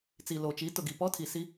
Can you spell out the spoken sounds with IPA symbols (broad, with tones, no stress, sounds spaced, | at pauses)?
t͡s i˨ l o˨ t͡ʃ i˨˦ t ʊ˨ ɡ i˨ p ɔ˦ tʰ i˨ s i˦